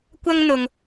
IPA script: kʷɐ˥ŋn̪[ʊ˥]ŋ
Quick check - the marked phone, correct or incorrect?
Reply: incorrect